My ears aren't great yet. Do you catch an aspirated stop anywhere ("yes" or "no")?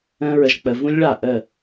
no